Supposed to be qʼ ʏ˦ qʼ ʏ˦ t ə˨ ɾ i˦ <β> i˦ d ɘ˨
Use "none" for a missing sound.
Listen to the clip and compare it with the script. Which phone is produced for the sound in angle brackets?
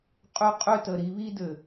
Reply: β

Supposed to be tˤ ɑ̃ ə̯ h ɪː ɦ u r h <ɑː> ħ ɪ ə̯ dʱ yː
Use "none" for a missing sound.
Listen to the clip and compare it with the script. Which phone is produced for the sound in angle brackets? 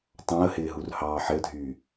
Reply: ɑː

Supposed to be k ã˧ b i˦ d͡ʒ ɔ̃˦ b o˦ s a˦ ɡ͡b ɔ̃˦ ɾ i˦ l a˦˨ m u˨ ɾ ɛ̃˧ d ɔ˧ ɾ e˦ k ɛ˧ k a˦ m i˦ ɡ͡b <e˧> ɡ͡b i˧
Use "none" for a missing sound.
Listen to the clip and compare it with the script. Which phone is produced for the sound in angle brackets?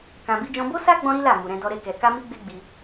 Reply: e˦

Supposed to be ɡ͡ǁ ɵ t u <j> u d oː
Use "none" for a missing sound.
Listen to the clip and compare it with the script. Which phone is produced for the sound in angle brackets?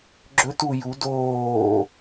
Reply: j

